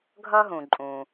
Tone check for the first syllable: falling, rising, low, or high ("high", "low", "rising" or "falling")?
high